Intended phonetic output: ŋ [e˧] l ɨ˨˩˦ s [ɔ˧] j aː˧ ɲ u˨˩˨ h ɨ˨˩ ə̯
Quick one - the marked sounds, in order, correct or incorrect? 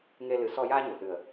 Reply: correct, correct

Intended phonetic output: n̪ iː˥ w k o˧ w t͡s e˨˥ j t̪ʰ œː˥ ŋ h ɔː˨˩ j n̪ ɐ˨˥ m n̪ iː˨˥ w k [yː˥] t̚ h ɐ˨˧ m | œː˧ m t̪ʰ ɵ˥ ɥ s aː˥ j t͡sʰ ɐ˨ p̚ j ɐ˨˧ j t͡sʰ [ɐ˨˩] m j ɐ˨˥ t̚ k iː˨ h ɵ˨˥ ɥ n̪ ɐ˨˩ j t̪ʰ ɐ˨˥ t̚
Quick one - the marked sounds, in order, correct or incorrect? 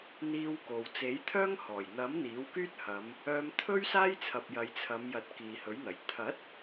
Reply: correct, incorrect: ɐ˨˧

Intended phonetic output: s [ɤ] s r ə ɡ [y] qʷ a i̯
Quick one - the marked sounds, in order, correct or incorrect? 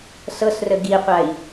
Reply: correct, incorrect: i

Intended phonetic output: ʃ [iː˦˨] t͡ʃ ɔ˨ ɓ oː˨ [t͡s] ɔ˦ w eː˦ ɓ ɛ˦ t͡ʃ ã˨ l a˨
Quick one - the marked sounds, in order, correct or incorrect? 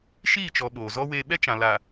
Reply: correct, incorrect: z

